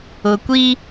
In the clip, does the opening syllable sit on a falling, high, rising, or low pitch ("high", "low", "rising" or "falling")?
low